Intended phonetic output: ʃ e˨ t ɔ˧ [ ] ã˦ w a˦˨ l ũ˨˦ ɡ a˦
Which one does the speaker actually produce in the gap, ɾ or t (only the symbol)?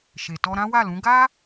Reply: ɾ